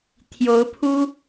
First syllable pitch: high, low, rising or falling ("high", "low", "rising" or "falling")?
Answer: rising